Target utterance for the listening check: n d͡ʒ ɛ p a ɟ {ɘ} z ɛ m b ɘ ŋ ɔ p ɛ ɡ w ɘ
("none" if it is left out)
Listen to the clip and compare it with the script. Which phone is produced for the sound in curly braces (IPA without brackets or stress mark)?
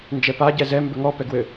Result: ɛ